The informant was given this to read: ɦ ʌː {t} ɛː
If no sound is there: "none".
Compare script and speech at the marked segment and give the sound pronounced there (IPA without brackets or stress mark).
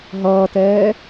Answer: t